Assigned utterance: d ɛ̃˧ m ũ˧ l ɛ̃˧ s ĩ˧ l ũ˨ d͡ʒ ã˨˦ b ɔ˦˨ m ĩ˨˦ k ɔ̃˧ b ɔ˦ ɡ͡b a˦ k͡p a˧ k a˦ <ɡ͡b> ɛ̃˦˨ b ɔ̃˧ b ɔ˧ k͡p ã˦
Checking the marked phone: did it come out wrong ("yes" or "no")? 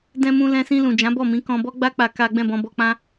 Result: no